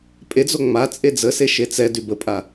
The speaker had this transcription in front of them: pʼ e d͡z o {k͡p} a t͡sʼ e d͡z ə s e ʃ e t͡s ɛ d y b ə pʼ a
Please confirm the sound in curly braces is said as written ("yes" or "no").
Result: no